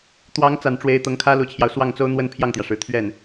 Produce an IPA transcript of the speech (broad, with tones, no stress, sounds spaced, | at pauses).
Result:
t̪ w ɑ˧˥ ŋ t͡s a˨˩ n ʈ͡ʂ w e˧˥ ɪ̯ t̪ ɤ˧˥ ŋ kʰ ä˥ l u˨˩ t͡ɕʰ j ɑ˦ ʊ̯ s w ɑ˥˩ ŋ t͡s o˥ ʊ̯ n̪ w ə˥ n pʰ j ɑ˥˩ ŋ t̪ j ä˩ ʂ ɻ̩˨˩ t̪ʰ ɥ ɛ˥˩ n